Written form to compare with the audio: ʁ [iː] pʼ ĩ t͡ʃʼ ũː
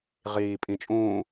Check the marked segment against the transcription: correct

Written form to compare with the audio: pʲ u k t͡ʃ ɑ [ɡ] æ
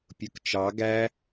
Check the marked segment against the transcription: correct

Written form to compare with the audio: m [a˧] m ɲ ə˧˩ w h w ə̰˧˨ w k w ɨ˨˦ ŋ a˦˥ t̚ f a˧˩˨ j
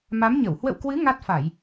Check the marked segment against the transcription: incorrect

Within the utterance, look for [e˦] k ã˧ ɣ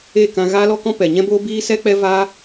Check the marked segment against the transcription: incorrect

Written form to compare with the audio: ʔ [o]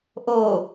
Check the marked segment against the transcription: correct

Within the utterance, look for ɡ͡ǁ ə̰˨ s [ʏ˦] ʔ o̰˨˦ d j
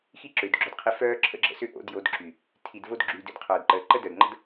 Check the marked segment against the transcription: correct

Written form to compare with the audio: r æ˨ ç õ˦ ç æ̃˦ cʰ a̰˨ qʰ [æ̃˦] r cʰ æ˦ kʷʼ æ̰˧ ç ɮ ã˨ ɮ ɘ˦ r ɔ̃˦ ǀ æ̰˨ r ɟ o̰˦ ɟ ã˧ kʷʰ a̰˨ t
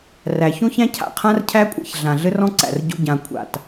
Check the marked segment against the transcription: incorrect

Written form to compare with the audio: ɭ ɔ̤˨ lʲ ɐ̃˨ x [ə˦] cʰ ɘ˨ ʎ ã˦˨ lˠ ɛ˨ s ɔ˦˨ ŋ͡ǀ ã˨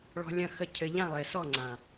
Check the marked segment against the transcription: incorrect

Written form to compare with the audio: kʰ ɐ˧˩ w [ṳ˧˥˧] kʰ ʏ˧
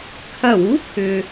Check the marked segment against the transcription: incorrect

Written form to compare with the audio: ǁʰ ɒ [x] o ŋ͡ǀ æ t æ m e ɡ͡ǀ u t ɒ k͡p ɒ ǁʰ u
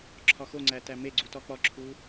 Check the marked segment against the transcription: correct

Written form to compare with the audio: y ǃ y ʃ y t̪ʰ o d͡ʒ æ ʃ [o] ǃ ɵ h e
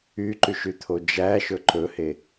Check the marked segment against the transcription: incorrect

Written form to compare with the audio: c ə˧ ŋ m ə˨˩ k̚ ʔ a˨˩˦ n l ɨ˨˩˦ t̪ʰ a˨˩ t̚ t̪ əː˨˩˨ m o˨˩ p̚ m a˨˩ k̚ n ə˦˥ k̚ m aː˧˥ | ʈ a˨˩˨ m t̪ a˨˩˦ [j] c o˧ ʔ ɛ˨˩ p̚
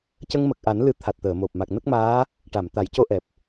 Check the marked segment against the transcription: correct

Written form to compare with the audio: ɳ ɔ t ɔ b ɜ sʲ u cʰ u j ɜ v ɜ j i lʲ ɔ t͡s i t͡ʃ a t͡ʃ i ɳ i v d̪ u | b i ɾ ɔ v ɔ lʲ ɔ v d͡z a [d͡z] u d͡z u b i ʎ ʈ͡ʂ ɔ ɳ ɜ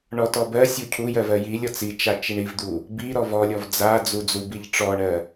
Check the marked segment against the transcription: correct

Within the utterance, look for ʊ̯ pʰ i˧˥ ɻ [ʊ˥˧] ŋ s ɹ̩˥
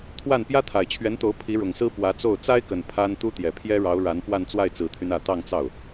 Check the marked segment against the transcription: incorrect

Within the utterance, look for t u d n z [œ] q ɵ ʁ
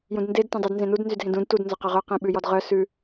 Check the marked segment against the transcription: incorrect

